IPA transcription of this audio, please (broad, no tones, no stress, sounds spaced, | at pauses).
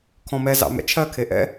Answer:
kʰ ɔ̃ m ɛ z ɑ̰ m ɛ̰ t͡ʃʰ ɜ kʰ e ʔ ɛ̰